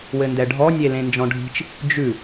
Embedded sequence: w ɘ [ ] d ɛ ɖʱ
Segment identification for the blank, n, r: n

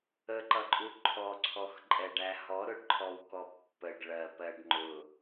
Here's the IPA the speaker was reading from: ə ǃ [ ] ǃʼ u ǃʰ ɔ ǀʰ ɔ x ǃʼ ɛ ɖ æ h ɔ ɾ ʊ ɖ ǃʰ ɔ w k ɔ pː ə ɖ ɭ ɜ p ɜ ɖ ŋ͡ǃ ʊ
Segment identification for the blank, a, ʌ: ʌ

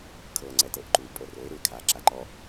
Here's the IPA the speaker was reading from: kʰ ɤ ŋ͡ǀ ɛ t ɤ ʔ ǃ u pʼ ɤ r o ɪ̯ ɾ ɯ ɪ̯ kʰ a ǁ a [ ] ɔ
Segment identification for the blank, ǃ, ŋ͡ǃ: ǃ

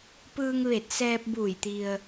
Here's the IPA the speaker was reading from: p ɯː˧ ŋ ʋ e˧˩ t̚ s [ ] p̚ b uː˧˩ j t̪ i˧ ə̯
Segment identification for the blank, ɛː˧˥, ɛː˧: ɛː˧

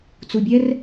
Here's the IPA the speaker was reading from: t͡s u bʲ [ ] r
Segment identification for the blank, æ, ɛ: ɛ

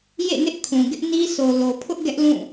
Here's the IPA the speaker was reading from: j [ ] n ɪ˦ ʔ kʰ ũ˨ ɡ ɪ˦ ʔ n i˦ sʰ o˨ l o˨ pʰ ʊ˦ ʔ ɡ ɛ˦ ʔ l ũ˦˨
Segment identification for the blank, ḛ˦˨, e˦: ḛ˦˨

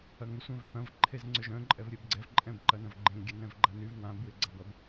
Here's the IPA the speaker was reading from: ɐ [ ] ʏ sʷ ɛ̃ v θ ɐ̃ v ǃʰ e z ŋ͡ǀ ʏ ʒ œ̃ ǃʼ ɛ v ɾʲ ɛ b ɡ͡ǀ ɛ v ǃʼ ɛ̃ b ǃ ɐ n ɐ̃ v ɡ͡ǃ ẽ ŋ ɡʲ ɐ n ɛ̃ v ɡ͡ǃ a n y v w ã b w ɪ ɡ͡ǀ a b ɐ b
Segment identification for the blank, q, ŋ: ŋ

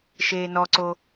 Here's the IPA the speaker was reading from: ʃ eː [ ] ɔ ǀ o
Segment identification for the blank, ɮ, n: n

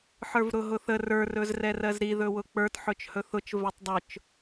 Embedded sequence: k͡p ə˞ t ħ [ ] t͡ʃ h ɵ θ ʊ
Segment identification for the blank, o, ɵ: ɵ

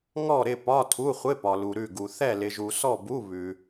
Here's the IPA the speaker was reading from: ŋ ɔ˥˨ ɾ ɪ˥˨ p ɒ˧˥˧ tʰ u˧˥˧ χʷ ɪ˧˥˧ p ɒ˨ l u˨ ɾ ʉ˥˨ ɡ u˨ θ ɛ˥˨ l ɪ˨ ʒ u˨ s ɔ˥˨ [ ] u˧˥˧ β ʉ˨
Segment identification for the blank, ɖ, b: b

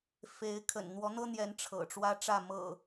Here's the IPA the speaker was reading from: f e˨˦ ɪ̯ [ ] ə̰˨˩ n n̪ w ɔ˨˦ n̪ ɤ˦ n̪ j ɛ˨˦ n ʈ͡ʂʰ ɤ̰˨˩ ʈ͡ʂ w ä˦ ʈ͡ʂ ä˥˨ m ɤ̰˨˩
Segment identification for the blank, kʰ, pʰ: kʰ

